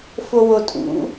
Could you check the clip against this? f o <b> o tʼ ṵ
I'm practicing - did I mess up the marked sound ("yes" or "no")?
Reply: yes